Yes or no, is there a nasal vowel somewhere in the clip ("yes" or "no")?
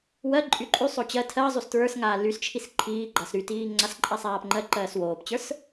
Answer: no